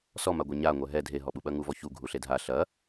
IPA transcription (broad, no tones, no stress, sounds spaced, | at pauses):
s ɔ m a ɡʷ e ɲ a ŋʷ ɛ ɦ ɛ dʱ e ɦ ɔ ɓ u ɓ ɐ ŋ u v ɔ ç u ɡʱ u ɬ e dʱ a ɬ ɐ